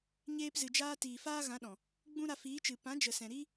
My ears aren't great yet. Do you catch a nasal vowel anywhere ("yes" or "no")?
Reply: yes